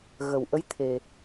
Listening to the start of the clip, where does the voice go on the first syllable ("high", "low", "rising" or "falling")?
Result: low